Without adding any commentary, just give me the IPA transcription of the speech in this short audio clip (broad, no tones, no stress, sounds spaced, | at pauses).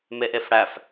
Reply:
m e ʔ e f ɽ æ f